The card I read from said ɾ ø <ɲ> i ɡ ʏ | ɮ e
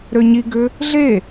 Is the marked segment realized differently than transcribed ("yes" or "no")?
no